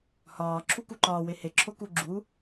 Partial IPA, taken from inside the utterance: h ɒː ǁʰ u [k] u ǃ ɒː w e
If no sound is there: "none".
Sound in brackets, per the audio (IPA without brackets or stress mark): k